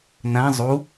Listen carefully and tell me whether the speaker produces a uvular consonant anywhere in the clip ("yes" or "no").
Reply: no